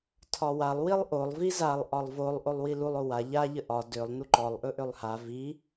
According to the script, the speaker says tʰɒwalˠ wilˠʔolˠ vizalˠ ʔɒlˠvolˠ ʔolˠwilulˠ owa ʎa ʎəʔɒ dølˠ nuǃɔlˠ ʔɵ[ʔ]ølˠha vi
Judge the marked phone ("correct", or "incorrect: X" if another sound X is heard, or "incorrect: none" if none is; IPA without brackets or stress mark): correct